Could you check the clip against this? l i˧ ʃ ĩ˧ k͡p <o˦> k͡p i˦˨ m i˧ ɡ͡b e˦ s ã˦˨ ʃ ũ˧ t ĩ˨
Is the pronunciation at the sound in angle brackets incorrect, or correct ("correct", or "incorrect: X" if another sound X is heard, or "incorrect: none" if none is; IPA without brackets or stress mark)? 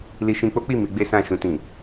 correct